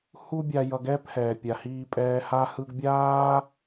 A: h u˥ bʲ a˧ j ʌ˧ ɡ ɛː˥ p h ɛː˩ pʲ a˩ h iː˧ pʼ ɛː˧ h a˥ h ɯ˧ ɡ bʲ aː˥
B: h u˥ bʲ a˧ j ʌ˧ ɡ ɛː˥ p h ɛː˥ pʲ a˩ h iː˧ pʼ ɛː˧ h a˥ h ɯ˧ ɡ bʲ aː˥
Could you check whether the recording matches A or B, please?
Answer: A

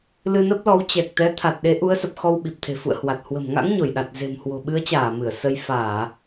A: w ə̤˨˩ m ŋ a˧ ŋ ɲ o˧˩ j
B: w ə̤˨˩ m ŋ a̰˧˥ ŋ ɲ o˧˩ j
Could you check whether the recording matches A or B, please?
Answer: B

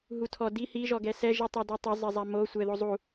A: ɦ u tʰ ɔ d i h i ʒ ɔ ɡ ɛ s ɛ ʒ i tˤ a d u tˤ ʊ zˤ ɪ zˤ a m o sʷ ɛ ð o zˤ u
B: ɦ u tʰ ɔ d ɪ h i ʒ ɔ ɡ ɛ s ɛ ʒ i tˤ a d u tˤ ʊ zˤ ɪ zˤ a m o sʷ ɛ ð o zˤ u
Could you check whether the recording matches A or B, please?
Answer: A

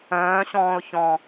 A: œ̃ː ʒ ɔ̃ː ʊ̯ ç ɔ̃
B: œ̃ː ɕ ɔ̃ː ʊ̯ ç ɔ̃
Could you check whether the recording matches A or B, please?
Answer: B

